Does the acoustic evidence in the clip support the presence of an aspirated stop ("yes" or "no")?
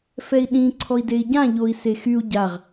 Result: yes